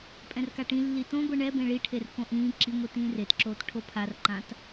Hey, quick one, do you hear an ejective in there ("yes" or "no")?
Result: yes